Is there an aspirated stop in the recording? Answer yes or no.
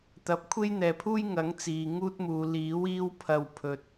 yes